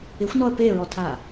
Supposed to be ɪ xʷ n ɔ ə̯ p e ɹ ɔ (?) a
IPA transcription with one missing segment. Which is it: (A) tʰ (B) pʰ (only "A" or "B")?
A